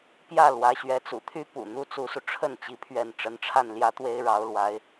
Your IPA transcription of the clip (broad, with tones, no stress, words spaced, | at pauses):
pjä˥˩ lwä˧˥ɕɥɛ˧˥ t͡sṵ˨˩t̪ʰy˥ pṵ˨˩n̪u˥ t͡su˧˥su˧ ʈ͡ʂʰə˥˩n t͡ɕi˧˥ pʰɥɛ˥˩n ʈ͡ʂə˧˥nʈ͡ʂʰa˥˩n ljä˥t̪we˥ɪ̯ ɻɑ˧˥ʊ̯lwa˧˥ɪ̯